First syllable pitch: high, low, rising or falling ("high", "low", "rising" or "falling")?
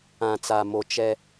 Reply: low